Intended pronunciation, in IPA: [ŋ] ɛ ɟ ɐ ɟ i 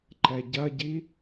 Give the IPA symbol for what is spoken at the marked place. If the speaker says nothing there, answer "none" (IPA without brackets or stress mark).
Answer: ǃ